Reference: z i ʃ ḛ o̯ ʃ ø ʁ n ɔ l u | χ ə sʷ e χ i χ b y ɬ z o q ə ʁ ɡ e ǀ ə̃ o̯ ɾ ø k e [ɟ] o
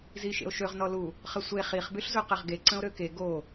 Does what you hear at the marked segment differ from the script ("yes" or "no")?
yes